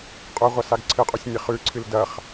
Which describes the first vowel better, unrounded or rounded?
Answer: rounded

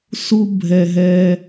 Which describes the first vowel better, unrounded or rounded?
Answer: rounded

